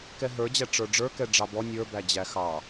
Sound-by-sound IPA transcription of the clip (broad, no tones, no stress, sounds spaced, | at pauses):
k ɛ ɦ ə˞ d͡ʑ æ ʈ͡ʂ ə˞ ɖ͡ʐ ə˞ k ɛ ɖ͡ʐ ɑ b ɔ nʲ ə˞ b æ d͡ʑ æ x ɑ